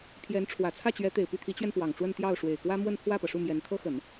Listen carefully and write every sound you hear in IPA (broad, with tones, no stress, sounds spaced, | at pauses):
pʰ j ɛ˧˥ n ʈ͡ʂʰ w ä˨˩ t͡sʰ ä˥˩ t͡ɕ ɥ ɛ˧˥ t̪ e˨˩ ɪ̯ p y˥˩ t̪ʰ i˧˥ t͡ɕ ɥ ɛ˧ n p w ɑ˨˩ ŋ ʈ͡ʂ w ə˥˧ n t̪ j ɑ˥˩ ʊ̯ ʂ w e˨˩ ɪ̯ k w ä˥ m w ə˥˧ n pʰ w ä˥˩ p ɤ˩ ʂ u˥˩ m j ɛ˧˥ n t̪ʰ ɤ˥ x ə˨˩˦ n